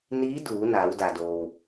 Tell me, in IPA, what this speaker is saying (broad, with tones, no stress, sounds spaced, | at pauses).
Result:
n iː˧˥ d uː˩˧ n aː˩˧ w d a˩ d oː˩ w